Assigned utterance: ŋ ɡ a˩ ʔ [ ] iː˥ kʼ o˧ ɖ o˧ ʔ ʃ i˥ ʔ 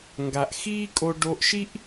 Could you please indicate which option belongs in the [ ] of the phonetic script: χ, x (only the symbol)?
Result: x